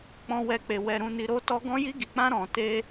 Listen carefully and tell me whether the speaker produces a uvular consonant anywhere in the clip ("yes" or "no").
no